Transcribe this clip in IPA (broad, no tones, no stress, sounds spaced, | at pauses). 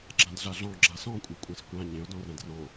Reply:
ɡ͡ǁ ã d ɮ a ɮ ɔ̃ ɡ͡ǁ a s ɔ̃ kʷʼ æ kʷʼ ã s kʷ ã ɲ ẽ ʊ̯ d ɔ̃ r æ̃ d r ɔ̃